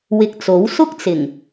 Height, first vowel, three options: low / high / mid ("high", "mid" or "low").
high